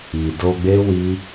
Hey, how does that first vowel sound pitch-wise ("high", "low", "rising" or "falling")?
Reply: low